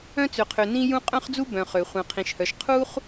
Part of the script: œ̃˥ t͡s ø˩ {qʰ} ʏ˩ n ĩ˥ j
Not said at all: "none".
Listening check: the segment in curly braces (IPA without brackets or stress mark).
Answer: qʰ